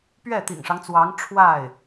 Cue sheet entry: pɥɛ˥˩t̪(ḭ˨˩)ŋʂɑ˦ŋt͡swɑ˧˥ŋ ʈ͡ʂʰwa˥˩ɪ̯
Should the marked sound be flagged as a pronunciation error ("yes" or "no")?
no